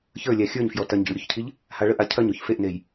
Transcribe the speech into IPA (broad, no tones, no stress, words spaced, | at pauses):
çə˞lʲæ xʲə˞ɲfjɔ tɐɲɟḭɭɾʲoçcʰiʎ | haɭəʔa cʰɐɲoç feʔnej